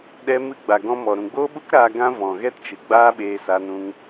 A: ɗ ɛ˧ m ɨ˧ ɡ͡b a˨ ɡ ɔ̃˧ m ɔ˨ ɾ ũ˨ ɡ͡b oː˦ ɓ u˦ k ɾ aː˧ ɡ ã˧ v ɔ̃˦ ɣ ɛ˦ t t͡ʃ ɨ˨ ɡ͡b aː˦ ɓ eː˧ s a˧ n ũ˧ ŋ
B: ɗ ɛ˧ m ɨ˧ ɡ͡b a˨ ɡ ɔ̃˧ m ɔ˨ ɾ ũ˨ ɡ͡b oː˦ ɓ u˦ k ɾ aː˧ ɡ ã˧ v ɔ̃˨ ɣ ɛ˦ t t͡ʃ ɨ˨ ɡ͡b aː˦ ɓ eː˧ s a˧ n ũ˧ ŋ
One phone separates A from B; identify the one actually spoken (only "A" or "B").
B